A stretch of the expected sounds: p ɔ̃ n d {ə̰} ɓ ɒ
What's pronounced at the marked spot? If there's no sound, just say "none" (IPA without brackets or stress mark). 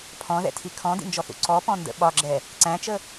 ə̰